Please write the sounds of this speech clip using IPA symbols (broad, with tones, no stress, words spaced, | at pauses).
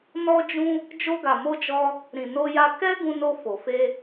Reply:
nɔ˦d͡ʒũ˦ | d͡ʒo˧ɡa˨mo˧d͡ʒɔ˧ | ɾĩ˨no˧ja˧ kɛ˦ ɡũ˧no˧ fo˨fe˧